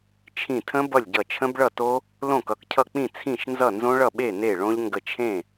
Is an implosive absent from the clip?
no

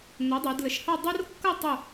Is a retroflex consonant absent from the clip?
yes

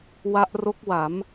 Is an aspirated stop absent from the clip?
yes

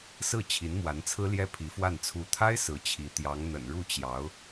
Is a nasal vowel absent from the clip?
yes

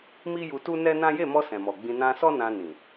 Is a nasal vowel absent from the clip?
no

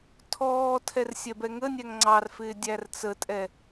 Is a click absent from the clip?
no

